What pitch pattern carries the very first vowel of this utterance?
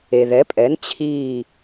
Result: low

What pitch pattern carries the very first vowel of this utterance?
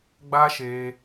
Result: high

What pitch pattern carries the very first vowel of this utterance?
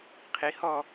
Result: rising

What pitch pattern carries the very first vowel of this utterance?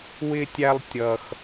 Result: high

